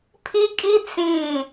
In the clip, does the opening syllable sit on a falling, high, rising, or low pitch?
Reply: high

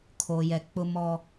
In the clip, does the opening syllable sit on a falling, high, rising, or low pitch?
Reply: low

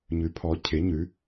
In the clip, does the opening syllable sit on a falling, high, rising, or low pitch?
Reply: rising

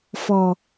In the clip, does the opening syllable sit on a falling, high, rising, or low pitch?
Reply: low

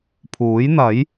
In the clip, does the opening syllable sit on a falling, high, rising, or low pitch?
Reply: rising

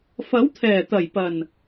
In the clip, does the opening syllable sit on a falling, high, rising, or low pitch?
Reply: rising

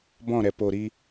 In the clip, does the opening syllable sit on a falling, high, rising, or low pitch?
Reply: falling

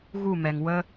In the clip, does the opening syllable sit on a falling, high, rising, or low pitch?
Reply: falling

